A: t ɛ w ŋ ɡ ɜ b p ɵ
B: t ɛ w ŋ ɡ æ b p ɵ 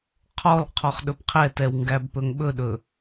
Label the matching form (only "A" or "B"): B